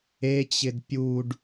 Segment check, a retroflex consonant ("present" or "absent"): present